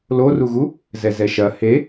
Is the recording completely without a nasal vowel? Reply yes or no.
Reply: yes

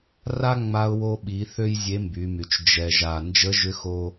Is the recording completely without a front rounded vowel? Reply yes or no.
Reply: no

